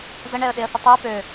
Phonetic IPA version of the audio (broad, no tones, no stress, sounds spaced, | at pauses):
z ə ɳ ɛ ə̯ ɗ e ə̯ θ ə tˤ ɛ p ø